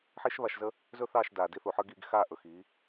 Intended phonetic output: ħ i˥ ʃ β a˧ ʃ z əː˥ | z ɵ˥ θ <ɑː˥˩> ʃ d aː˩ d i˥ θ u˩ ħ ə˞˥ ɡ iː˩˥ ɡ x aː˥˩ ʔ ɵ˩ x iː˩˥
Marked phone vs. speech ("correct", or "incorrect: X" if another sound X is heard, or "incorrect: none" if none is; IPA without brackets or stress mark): correct